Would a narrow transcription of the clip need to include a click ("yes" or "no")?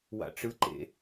yes